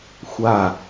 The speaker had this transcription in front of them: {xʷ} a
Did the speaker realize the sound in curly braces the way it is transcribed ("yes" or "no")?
yes